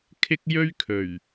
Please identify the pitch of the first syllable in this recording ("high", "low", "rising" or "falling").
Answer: high